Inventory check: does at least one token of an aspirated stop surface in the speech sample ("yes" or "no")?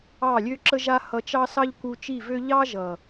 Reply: no